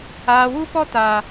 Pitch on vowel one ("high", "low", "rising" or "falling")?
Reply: low